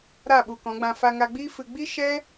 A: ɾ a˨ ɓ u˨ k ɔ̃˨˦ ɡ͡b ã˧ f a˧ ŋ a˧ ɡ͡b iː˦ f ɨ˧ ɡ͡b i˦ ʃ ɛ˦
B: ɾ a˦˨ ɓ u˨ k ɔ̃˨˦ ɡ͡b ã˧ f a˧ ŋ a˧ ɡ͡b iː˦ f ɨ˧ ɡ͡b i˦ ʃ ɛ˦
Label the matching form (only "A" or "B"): B